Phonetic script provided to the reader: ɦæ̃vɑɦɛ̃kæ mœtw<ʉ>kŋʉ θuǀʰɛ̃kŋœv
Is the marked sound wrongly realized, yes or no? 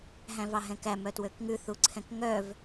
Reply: yes